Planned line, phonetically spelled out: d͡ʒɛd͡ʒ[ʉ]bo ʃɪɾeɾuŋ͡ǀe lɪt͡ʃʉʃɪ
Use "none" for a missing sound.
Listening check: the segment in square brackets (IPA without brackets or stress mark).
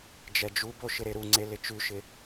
u